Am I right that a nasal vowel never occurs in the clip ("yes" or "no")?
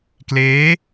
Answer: yes